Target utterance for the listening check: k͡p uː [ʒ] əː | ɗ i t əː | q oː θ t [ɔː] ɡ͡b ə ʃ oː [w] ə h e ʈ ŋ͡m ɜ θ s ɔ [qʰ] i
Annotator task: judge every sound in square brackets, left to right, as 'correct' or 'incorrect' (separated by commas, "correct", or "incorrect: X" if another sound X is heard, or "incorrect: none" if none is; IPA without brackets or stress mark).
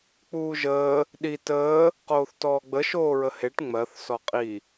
correct, correct, incorrect: ɹ, incorrect: qʼ